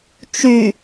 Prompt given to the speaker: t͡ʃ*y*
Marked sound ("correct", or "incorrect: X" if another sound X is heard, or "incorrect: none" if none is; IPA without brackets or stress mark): correct